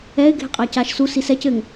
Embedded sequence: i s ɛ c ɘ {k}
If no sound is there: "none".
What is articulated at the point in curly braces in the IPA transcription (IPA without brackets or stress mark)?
ŋ